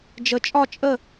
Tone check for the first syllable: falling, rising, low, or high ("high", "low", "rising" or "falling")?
low